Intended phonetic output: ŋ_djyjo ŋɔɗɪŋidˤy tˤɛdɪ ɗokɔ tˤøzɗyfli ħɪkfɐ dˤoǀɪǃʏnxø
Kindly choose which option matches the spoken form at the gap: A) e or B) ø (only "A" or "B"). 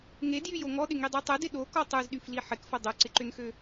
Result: A